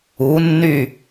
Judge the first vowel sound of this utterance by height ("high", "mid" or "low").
high